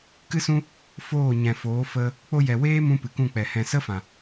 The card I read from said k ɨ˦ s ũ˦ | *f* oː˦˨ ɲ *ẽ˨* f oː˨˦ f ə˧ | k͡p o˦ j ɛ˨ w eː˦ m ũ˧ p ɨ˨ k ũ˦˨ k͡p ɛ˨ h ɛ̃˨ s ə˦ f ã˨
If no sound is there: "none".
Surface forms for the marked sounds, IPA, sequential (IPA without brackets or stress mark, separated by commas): f, ɛ̃˨